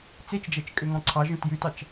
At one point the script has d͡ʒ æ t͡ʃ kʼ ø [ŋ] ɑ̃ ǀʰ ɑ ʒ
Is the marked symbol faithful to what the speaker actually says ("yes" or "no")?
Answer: yes